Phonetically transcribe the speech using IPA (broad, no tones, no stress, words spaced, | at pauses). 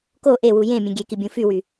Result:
ko ʔewu jẽ mʲẽɡʲeki bʲũfywy